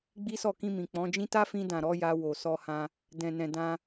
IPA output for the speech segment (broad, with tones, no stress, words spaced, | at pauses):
ɡ͡bi˦sɔ˦˨ kĩ˧mĩ˨ k͡pɔ̃˨˦d͡ʒĩ˦ ta˦fĩ˧dã˨ ɾɔ˨˦ja˧ wo˨sɔ˧ hã˧ | dɛ̃˨nɛ̃˨ dã˧